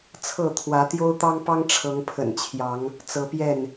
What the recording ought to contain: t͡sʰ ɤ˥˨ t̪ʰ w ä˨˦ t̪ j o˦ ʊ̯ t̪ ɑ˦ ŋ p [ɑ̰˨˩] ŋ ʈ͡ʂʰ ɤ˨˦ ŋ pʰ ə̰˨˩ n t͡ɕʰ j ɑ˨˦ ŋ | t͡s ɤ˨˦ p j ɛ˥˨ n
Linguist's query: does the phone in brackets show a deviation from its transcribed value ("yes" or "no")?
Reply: yes